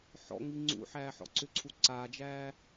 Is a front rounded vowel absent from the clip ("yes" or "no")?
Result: no